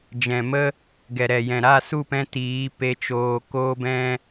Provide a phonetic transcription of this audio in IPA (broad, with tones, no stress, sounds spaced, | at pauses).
d͡ʒ ɛ̃˨ m ə˦ | ɡ ɛ˨ ɾ ɛ˨ j ɛ̃˨ ɾ a˦˨ s u˦˨ p ɛ̃˧ t iː˨˦ p e˧ t͡ʃ oː˧ k oː˦ b ɛ̃˦